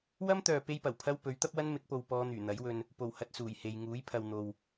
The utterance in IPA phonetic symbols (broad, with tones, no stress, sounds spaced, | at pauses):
w ɐ˥ m t̪ œː˨ p e˥ j p ɐ˨˩ w pʰ ɐ˥ w p ɵ˨˥ ɥ t̪ ɐ˥ p̚ w ɐ˥ n m ɪ˨˥ k̚ p o˨ w p ɔː˧ n̪ yː˨˩ n̪ ɐ˨˥ j w ɵ˧ n | p o˨˩ w h ɐ˨ t̚ s uː˨˩ j h e˨ j ŋ uː˨˥ j pʰ ɐ˨ w n̪ o˨ w